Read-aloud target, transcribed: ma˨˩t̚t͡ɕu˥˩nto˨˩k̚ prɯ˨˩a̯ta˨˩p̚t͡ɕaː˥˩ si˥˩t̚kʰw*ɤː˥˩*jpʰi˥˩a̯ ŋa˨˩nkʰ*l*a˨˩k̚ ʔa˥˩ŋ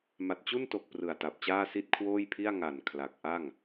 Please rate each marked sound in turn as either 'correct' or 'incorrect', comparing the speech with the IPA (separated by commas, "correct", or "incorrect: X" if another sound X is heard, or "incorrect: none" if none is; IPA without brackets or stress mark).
incorrect: oː˥˩, correct